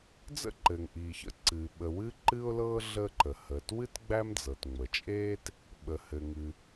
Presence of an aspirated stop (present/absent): absent